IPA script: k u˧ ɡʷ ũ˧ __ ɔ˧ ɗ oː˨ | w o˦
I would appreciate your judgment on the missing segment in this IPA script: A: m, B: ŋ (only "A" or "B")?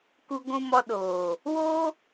A